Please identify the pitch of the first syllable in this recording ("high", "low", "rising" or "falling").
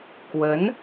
rising